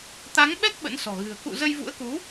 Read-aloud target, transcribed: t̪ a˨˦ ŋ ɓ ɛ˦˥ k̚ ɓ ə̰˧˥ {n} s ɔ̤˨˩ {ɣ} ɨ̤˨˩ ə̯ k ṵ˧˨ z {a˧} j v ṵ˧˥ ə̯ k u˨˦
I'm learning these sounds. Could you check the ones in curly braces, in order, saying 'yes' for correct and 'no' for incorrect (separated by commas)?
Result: yes, yes, no